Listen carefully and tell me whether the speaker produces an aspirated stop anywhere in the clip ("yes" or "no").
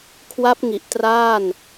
yes